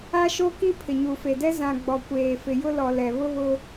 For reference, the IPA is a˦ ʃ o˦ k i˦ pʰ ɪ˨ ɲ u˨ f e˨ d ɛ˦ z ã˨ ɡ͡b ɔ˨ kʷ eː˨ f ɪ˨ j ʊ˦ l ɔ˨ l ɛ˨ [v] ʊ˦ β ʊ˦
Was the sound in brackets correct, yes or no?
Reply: no